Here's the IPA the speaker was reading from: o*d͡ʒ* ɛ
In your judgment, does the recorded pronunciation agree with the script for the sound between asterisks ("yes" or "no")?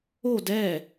no